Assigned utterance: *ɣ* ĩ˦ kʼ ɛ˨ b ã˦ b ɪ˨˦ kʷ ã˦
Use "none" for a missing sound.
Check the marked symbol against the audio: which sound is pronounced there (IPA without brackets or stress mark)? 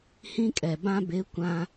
h